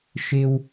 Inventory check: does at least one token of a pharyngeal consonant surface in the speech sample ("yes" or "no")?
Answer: no